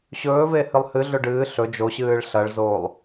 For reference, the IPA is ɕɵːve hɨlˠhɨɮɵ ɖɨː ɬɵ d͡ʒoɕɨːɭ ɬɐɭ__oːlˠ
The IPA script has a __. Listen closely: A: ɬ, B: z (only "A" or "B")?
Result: B